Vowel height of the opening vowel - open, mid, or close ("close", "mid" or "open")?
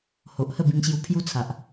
mid